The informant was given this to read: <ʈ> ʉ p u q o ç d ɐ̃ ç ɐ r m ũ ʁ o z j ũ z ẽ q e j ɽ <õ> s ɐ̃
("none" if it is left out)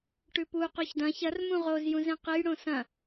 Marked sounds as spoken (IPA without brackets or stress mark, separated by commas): ʈ, õ